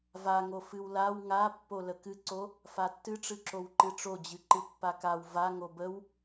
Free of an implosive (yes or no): yes